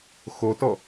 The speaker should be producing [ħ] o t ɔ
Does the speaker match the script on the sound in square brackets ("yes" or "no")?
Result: no